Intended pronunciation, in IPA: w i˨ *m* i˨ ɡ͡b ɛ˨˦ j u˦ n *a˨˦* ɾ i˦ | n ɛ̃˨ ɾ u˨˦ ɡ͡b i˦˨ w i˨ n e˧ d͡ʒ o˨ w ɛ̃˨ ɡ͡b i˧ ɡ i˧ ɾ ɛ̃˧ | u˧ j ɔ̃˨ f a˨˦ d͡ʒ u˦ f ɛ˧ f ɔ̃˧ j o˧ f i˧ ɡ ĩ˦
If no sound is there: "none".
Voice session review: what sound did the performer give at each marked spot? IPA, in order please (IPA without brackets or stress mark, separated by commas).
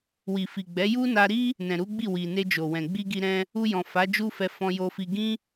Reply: f, a˧